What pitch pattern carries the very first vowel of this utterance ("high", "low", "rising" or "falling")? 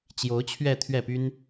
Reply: rising